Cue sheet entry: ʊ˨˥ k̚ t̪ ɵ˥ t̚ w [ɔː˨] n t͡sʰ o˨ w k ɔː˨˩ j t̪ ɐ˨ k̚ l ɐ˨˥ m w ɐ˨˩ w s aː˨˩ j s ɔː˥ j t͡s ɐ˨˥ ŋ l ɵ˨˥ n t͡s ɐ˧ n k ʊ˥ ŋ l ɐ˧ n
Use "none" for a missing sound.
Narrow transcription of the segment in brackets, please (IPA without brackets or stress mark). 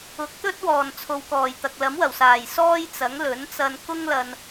ɔː˨˩